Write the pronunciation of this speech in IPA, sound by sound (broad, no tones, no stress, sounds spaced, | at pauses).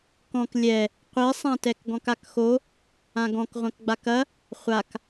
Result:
k ɔ̃ k lʲ ɛ | qʷ i sˤ ã t ɛ k ɡ ɔ̃ k a k x o | ã ɡ ɔ̃ k ʁʷ ɐ̃ k ɡ͡b a k ɐ | χʷ a k